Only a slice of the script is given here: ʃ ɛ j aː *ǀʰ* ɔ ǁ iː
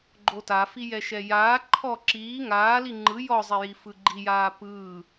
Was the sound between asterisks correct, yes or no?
no